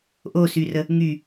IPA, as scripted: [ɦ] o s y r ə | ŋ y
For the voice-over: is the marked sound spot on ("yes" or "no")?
no